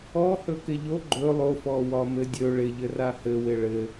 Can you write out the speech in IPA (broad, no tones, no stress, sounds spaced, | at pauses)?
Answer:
ɔ h ɵ k ɪ ʎ o ɡ͡ǃ ɵ lˠ o f ɔ w ɒ m ɘ dʲ ɵ ɭ ɪ ʎ ɘ r a h ɘ w ɪ ɭ ɘ